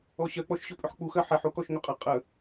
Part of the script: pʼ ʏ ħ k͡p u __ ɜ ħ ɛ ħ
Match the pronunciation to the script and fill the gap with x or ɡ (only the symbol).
x